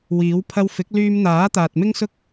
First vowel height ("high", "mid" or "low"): high